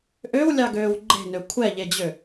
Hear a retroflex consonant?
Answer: no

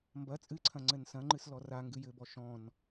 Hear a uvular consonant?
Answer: no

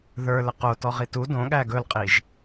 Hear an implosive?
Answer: yes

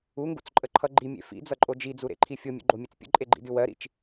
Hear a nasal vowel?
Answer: no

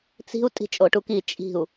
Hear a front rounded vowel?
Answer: no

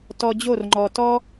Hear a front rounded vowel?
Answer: no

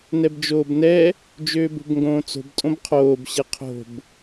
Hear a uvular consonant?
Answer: yes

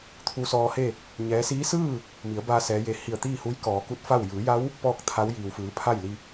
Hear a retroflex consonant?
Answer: no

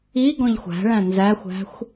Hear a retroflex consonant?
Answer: yes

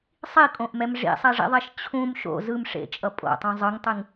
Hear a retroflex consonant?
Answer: yes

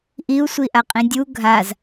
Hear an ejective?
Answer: yes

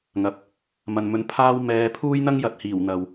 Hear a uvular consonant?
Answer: no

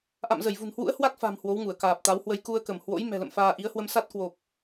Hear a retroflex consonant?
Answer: no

